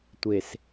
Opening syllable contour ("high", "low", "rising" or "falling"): low